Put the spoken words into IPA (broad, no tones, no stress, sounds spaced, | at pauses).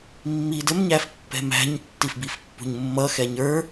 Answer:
mː i d ə m ɲ æ f pː ɛ̤ m æ̤ ɲ tː i f b i f pː ṳ ɲ mː ʌ x ɛ ɲ ə˞